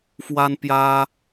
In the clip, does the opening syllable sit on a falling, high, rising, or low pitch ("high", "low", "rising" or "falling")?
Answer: high